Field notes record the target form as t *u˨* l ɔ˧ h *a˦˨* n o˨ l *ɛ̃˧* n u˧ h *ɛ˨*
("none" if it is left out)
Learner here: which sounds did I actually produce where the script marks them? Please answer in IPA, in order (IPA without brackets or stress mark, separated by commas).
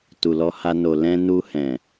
u˨, a˧, ɛ̃˧, ɛ̃˨